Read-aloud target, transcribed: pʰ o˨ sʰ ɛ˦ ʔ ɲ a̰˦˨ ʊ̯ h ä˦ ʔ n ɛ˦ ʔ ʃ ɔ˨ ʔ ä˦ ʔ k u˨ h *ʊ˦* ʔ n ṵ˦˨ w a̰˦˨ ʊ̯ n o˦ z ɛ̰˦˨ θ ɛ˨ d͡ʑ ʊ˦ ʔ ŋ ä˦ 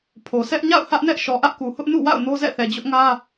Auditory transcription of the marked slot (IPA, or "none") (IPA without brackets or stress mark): ʊ˦